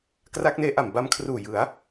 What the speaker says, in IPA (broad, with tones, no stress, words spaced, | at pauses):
kra˦˥k̚neː˦˥ ʔa˨˩mba˧mkʰruː˨˩ jɯ˩˦a̯